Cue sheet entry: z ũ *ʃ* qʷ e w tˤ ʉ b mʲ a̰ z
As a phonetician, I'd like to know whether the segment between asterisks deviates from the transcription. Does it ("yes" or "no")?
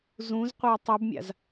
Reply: yes